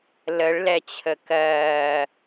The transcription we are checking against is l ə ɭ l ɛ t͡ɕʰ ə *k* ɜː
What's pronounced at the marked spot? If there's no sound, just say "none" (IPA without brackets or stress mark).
k